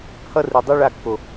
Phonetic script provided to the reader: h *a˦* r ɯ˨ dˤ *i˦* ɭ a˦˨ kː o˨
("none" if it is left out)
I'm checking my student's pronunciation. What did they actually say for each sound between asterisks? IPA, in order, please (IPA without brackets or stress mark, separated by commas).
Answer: ʌ˦, i˦